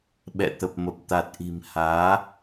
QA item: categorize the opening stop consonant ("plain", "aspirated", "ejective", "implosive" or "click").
implosive